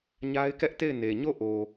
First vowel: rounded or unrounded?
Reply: unrounded